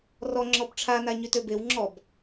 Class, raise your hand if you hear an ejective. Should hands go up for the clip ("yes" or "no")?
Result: no